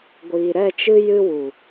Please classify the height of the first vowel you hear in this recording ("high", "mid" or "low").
high